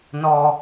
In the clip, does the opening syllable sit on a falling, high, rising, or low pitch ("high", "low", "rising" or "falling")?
high